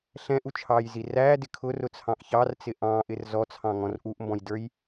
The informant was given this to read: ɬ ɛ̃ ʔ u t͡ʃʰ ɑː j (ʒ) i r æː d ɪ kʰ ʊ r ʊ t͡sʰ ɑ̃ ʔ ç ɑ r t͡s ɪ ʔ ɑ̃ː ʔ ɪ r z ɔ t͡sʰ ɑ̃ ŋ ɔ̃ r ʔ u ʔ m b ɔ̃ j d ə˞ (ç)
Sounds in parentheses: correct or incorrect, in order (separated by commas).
incorrect, incorrect